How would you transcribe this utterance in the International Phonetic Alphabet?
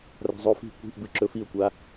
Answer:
r a̤ zˤ o f i̤ kʷ i̤ ʔ b ɨ ǁ ɵ f i ʊ̯ kʷ a

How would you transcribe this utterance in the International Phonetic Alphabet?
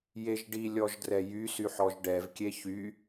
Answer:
j e ʒ ɖ i lʲ ɔ ʒ d r ɛ j y s y ħ ɔ ʒ ɖ ɛ v kʲ e ç y

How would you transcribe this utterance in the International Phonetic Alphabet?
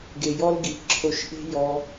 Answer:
ɡ e˨ j ɔ˦ l ɡ i˨ ǁʰ o˧ ʃ ʔ e̤˦ j ɔ˧

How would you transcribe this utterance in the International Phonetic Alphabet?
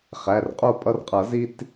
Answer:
χ æ˩˧˩ r qʼ o˥˨ pʼ ʌ˦ r qʼ ʌ˨˩˦ z i˦ t

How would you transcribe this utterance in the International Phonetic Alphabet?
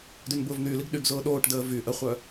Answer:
d y n b ʊː v n̪ y l i ɡ ɗ y ɡ z ʊː ɗ oː ʈ d əː v y ʔ ə χʷ œ

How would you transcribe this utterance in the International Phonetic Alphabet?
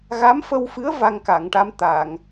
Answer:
ɣ a˧˥ m f ə˧ w f ɨ˧˥ ə̯ v a˧ ŋ k a˨˩˨ ŋ ʈ a˧ m t̪ a˨˩˨ ŋ

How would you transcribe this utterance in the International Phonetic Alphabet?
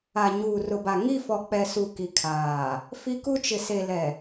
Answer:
a˨ ɲ uː˨ r ʊ˨ b a˨ ŋ i˦˨ f ɔ˨ k͡p ɛ˨ s u˨ k i˨ kʰ aː˨ | f i˦ k u˦ t͡ʃ ɪ˨ s e˨ l ɛ˨

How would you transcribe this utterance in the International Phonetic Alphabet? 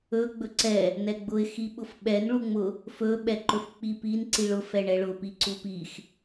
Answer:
ɵ ɡ͡b ɵ ǀ ɛ | n ɛ ɡ͡b ʊ ɪ̯ x i ɓ ʊ f ɓ ɛ n ɭ u ŋ͡m ʊ | f ɵ ɓ ɛ ǃ ɵ f k͡p i p i n ǀ i ɭ ʊ f ɛ ɳ ɛ ɭ ʊ p i ǀ u p i x

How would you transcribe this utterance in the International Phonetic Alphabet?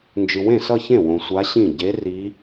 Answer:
n d͡ʒ ɯ˨ w ẽ˥˩ s ʌ˥˧ ç ẽ˥˩ w õ˨ sʷ a˧˥ ɕ ĩ˥˩ ɟ e˧˥ r i˧˥

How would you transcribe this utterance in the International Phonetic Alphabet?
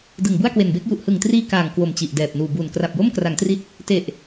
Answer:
d ɯ˨˩ ŋ b u˥˩ a̯ k w e˨˩ n b e˦˥ k̚ j u˨˩ ʔ h ɯ˨˩ ŋ t r iː˧ k aː˨˩ ŋ k w o˨˩ m t͡ɕ i˨˩ ʔ d ɛː˨˩ p̚ n uː˨˩ b uː˨˩ n k r a˨˩ p̚ j o˥˩ m k r a˩˦ ŋ t r i˦˥ t̚ | t e˨˩ ʔ

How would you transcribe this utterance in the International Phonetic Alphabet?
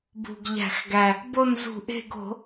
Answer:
b ṳ˨˩ ɡ ʎ æ̤˧˩˧ x ɡ æ˨˩ | b o˦˨ n z ṳ˧˩˧ ʔ e̤˦˨ ɡ o̤˧˩˧

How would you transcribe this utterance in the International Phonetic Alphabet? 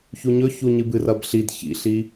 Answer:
ç u ɲ ɵ ç u ɲ ɨ b ɨ r ɐ b ɬ i d ç ḭ ɬ i

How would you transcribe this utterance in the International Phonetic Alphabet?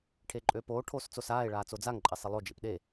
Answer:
ʈʰ e ǃʼ øː p oː ʈʰ oː s t͡s o s aː e̯ ɭ aː t͡s o d͡z a ŋ ǃʼ ɪ sˤ ɪ lˠ o d͡ʒ ḛ p ɗ e

